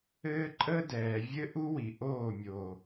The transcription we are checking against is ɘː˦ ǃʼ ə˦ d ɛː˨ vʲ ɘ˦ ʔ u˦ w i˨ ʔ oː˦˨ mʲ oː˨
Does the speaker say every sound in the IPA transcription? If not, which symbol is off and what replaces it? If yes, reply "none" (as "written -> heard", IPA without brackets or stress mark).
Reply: none